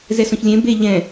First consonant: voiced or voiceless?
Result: voiced